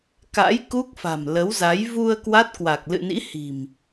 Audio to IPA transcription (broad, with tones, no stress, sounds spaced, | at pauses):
k a̰˧˥ j k u˦˥ k̚ f a̤˨˩ m l ə˨˦ w z a˨˦ j v u˧ ə̯ k w a˦˥ t̚ k w a˨˩ k̚ l ɨ̰˧˨ n ḭ˧˥ h i̤˨˩ m